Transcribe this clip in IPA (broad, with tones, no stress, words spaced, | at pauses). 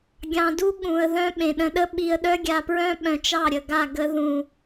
ɡʲɑ̃˧du˦ ɠũ˨ə̯ ðœ̃˦ ɓẽ˨ɗə̃˧ɗə˦ ɓi˧ə̯ ɗœ˦ɡʲa˧pɹœ̃˦ ɓœ̃˧t͡ʃɑ˦˨ɾʲə˨ɡa˦˨ ɡə˧ ðũ˨